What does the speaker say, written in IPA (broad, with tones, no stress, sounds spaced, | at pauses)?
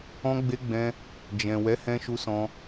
ɔ̃˧ ɡ͡b e˧ ɡ͡b ɛ̃˧ | d͡ʒ ɛ̃˨ w ɛ˨˦ h ɛ̃˧ ʃ u˧ s ɔ̃˧